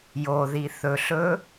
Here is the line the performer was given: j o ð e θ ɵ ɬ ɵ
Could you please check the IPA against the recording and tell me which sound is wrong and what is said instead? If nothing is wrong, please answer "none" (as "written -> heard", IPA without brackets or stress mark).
e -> i